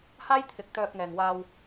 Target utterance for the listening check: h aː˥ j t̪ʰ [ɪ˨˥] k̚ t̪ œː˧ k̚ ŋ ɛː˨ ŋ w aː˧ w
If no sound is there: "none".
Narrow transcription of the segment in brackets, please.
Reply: ɪ˨˥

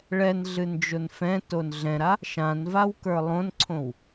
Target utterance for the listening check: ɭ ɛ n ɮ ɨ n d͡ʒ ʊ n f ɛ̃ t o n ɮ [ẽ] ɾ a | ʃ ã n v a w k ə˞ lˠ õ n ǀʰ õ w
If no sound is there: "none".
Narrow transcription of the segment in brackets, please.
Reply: ɛ̃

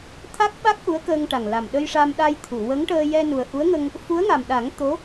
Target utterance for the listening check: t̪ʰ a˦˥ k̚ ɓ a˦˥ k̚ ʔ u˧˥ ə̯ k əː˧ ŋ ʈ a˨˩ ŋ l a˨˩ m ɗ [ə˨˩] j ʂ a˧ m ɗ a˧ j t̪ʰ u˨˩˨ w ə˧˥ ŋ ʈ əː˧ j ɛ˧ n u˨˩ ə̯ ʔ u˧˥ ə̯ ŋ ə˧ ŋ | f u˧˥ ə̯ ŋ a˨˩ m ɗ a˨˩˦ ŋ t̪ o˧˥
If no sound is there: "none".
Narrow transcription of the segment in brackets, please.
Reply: ə˧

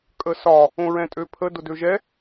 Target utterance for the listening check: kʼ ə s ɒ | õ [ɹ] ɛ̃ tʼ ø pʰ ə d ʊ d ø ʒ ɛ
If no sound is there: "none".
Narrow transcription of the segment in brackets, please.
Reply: ɹ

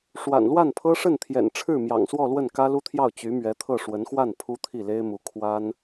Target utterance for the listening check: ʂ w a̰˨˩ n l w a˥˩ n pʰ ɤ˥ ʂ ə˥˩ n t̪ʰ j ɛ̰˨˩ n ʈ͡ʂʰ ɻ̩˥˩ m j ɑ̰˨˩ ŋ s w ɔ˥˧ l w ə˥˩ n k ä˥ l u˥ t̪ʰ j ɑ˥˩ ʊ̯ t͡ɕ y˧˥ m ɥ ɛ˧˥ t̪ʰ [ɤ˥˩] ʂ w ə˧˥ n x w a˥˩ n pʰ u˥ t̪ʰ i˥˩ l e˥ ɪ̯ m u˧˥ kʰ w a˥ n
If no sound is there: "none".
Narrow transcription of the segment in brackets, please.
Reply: ɤ˥˩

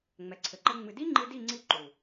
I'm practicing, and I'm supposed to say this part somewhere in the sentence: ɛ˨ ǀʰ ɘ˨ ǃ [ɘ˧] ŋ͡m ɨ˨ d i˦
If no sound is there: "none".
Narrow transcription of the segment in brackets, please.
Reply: ɘ˧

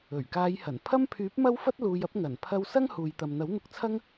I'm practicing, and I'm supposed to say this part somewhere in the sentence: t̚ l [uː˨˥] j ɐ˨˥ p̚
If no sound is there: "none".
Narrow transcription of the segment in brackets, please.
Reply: uː˨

